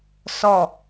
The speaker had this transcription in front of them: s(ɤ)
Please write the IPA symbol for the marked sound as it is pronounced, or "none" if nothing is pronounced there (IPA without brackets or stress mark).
ɔ